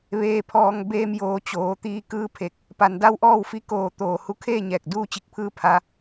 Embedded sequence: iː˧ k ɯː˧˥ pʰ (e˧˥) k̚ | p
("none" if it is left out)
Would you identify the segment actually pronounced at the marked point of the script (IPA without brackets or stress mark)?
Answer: e˧˩